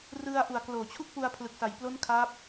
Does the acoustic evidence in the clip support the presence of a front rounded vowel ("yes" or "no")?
no